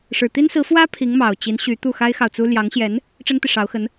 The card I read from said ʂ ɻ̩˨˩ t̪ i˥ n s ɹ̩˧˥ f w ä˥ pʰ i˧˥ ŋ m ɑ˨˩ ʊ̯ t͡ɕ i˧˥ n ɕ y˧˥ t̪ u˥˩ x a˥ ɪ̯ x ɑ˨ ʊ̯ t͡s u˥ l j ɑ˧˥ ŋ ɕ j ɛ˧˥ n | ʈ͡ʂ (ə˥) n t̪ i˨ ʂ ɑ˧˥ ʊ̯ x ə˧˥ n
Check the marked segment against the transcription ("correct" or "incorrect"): correct